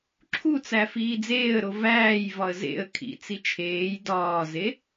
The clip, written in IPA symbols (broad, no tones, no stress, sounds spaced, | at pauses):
ǁʰ u t͡s æ f iː d͡z eː ə̯ ɾ o v æː j v ɒ ə̯ z ḛ ə̯ kʰ ḭ t͡s i t͡ʃʰ eː j d ɒː z e